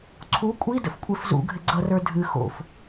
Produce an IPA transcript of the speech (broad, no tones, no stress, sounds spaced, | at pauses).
ǀʰ u kʷʼ i d ə̰ f kʷʼ e f z ṵ ɡʱ ɪ ɡ͡ǀ ʌ r ə˞ dʱ ɨ x o̰ f